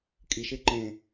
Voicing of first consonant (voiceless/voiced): voiceless